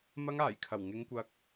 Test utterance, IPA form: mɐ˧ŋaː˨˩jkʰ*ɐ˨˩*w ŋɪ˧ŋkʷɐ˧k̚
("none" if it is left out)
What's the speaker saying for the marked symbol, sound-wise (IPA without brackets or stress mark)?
ɐ˨˩